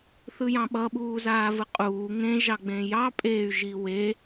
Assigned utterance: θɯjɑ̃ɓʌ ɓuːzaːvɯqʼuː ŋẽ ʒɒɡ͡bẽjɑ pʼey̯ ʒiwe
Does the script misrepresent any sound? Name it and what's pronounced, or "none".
ɒ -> ɑ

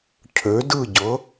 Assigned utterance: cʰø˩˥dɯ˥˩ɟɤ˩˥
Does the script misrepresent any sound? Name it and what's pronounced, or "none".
none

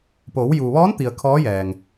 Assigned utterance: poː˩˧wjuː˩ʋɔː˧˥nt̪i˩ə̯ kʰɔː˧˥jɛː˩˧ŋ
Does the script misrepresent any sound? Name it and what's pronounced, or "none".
ɛː˩˧ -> ɛː˩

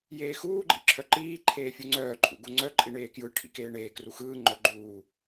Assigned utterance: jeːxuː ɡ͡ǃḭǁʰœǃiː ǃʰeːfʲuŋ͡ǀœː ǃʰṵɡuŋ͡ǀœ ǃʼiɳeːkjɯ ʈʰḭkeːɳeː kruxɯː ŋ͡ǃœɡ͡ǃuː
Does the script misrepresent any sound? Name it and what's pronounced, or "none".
none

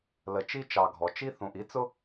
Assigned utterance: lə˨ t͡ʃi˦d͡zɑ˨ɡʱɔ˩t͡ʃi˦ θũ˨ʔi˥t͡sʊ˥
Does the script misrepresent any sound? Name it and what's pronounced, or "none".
d͡z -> t͡ʃ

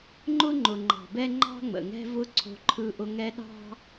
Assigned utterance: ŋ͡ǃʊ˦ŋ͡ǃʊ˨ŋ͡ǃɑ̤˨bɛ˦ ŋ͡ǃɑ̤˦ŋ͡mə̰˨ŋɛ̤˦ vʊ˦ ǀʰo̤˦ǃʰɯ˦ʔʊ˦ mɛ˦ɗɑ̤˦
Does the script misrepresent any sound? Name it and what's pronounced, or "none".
m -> ŋ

